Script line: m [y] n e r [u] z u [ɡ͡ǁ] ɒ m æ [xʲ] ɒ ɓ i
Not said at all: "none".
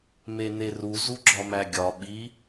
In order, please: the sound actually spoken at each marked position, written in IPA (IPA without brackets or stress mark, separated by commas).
e, u, ɡ͡ǁ, ɡʲ